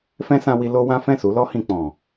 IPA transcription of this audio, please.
f ɛ̃˦ s ã˧ w i˧ l o˦ w ã˦ f ɛ̃˦˨ s u˨˦ l ɔ˦ h ĩ˧ k͡p ɔ̃˨

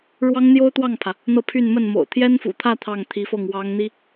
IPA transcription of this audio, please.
ɻ w ɑ˥ ŋ n̪ j o˥ ʊ̯ t̪ w ɑ˥˩ ŋ pʰ ä˩ | n̪ ɤ˥˧ pʰ y˥˧ n m ə˥˩ n m o̰˨˩ ʊ̯ t̪ʰ j ɛ˥ n f ṵ˨˩ t̪ʰ ä˥˧ t̪ʰ ɑ˥˩ ŋ t̪ʰ i˧˥ f ɤ˥˩ ŋ w ɑ˧˥ ŋ n̪ i˥

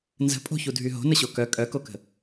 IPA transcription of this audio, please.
n z ə̤ pʼ o̤ ç u dʱ y ɦ o̤ n ə ɕ o k œ kʼ œ k o k ə̤

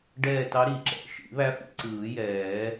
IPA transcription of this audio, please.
ɖ ɛː˦˨ t ɑ˧˥ ɾ i˨˩˦ ǁ ɛ̰˨˩˦ ʃ ḭ˨˩˦ β æ˧˥ f ḭ˦˨ ǀ ɯː˨˩˦ j ɛː˨˩˦

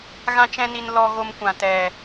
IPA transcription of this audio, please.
ɣ ã˦ t͡ʃ ɛ̃˦ n i˧ n l ɔ˧ ɣ o˧ m kʷ ã˨ t ɛ˨

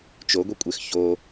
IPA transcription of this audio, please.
t͡ʃ o ɡʷ i kʷʼ e x ç o

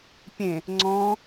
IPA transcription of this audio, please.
pʲ ẽ | ŋ͡ǀ ɔ̃

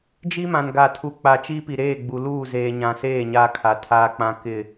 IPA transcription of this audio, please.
d͡ʒ i˦ m ã˨ n ɡ a˨ tʰ u˨ k͡p a˨ t͡ʃ i˦ p i˨ ɾ eː˦˨ ɡ͡b u˨ l uː˦˨ z eː˨ ɲ ã˨ s eː˦˨ ɲ a˦ kʰ a˨ tʰ aː˦ k͡p ã˦ k ɪ˦˨

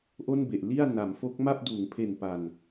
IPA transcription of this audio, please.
ʔ o˥˩ n b e˨˩ ʔ l i˥˩ a̯ n a˩˦ m f o˦˥ k̚ m a˥˩ p̚ d uː˩˦ ŋ pʰ e˨˩ n p a˨˩ n

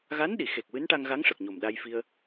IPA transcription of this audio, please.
ɣ a˧˥ n ɗ i˨˩˨ x e˨˩ k̚ w ɨ˧˥ n ʈ a˧ ŋ ɣ a˧˥ ŋ ʂ ə˨˩ k̚ ɲ o˨˩ m ɗ a˧ j f i˧ ə̯

